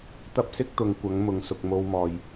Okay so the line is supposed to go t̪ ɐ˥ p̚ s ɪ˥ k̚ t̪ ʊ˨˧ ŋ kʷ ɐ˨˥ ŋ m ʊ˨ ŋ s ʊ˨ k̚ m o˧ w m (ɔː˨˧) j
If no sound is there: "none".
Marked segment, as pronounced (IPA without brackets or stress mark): ɔː˨